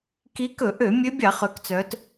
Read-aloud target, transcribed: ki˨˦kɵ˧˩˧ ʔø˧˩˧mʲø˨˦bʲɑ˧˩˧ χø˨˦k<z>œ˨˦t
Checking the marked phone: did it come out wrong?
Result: yes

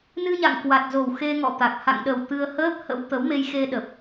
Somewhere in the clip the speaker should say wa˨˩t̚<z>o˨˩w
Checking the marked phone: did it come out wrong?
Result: no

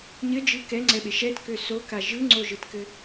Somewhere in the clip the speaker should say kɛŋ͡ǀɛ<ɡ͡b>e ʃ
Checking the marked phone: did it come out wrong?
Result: yes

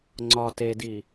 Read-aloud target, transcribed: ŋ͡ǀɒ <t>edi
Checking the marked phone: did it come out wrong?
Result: no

